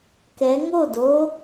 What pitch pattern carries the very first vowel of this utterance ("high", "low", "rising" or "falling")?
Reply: rising